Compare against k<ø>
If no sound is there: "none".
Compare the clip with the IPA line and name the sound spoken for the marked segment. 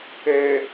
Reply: ø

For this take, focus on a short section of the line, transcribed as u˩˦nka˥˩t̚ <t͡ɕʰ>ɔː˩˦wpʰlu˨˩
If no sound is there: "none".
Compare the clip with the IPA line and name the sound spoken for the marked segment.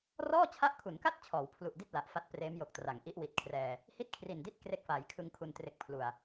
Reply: t͡ɕʰ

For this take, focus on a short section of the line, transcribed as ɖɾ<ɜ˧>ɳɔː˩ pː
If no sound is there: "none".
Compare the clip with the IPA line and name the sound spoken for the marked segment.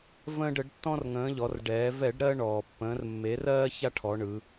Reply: ɜ˧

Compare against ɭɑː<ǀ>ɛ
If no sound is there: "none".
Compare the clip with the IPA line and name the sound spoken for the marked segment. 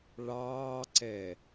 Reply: ǀ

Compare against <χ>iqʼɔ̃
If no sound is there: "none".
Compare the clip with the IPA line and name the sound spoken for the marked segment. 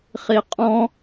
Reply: χ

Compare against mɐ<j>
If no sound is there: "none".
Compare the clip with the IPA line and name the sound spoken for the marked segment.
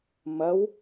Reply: w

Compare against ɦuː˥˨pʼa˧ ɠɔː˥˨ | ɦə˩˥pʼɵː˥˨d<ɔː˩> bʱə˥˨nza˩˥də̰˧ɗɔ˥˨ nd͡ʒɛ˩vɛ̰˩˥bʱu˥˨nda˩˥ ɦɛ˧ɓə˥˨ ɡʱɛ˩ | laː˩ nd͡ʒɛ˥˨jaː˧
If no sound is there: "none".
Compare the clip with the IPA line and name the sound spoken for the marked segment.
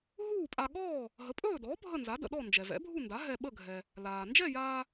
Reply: ɔː˩˥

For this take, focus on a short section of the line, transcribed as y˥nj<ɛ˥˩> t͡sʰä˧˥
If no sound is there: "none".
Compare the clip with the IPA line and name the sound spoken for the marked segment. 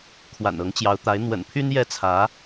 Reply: ɛ˥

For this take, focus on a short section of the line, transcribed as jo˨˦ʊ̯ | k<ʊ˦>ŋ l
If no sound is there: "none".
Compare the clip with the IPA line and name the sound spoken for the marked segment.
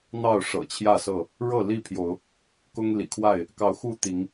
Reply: ʊ˦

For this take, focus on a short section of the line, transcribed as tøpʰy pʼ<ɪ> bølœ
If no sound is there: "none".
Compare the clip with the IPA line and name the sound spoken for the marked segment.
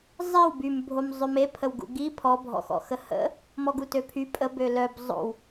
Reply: ə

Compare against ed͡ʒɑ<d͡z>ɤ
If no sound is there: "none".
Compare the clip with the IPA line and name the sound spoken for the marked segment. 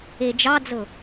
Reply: d͡z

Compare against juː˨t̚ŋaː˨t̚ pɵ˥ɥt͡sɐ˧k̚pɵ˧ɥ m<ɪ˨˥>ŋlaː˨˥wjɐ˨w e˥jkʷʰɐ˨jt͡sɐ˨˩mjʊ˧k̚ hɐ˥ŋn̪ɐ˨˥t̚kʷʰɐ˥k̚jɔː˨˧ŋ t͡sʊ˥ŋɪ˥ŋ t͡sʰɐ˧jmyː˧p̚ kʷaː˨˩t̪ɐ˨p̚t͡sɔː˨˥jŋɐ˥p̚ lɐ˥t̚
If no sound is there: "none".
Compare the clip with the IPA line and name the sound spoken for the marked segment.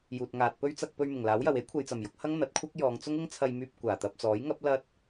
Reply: ɪ˨˩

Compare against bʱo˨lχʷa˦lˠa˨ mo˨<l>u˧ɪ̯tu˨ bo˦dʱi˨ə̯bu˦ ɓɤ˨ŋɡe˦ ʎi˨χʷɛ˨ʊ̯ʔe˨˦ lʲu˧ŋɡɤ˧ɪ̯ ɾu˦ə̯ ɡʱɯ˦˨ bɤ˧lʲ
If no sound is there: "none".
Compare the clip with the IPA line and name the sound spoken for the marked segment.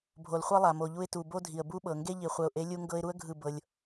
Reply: ʎ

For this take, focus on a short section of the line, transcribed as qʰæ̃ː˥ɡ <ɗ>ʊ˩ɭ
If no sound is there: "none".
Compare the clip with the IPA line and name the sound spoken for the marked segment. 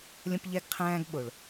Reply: ɓ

